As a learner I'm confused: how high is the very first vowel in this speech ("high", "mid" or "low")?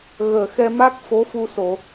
mid